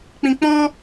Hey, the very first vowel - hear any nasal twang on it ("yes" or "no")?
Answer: yes